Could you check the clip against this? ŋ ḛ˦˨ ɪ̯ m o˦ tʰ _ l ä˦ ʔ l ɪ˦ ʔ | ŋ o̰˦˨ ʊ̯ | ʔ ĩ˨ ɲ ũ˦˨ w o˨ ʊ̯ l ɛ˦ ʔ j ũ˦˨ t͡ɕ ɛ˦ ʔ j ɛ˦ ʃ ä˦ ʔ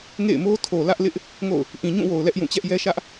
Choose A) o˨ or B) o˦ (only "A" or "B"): A